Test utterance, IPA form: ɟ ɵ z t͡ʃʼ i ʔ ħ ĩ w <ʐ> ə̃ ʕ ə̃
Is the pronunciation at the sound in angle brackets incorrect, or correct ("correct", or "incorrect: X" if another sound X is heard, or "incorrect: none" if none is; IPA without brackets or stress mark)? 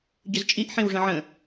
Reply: correct